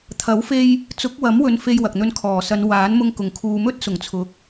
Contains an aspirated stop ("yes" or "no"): yes